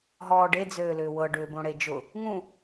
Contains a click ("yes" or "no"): no